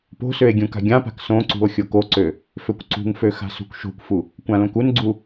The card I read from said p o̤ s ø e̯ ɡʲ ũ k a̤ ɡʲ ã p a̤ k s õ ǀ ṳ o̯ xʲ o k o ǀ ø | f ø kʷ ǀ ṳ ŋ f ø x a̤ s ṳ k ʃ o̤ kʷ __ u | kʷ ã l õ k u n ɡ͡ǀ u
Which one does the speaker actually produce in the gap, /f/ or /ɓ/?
f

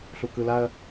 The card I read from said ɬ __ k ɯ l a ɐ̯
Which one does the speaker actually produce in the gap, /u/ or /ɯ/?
u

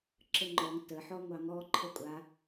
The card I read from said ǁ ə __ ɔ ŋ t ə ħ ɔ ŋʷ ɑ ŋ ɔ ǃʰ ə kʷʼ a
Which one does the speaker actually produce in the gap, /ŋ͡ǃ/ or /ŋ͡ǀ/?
ŋ͡ǃ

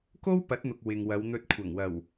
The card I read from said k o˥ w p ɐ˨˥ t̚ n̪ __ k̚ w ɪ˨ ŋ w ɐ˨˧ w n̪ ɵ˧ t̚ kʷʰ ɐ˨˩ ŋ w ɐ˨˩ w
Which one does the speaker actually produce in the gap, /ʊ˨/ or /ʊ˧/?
ʊ˨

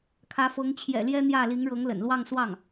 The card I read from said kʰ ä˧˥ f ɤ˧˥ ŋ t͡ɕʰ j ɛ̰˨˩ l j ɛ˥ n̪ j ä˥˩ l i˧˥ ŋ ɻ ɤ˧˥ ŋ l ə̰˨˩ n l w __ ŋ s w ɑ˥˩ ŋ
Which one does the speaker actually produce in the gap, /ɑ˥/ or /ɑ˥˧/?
ɑ˥˧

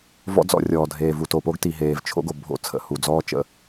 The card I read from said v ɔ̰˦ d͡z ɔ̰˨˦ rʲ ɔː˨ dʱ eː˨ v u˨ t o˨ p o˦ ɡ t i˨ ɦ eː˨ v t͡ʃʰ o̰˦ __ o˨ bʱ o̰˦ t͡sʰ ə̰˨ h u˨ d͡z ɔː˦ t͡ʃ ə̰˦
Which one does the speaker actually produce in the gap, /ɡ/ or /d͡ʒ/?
ɡ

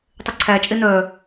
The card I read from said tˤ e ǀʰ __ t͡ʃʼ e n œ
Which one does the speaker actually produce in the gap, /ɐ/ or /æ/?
æ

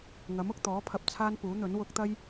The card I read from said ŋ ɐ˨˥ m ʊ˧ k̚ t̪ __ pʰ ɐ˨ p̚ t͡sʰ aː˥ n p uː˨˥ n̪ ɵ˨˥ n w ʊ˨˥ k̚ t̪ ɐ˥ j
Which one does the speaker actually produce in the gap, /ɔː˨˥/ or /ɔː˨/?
ɔː˨˥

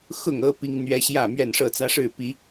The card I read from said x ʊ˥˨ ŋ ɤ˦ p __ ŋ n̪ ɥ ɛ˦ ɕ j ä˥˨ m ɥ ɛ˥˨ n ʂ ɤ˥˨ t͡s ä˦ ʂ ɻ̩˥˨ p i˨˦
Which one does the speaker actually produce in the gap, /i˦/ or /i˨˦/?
i˦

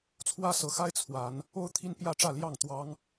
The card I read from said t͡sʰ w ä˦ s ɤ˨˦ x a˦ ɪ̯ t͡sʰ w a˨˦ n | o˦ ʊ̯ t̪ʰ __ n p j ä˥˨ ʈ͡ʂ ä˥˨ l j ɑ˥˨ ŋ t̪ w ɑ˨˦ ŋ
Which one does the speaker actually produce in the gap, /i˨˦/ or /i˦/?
i˦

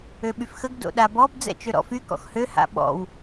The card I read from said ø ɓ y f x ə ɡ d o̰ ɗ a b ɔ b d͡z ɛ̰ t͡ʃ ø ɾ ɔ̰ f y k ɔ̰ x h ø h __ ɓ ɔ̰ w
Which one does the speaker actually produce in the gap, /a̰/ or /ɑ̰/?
a̰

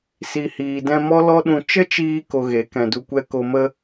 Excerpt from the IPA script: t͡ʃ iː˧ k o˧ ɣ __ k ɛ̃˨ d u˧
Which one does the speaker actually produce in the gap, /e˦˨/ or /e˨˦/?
e˨˦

